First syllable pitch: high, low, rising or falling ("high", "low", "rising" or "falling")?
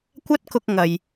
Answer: high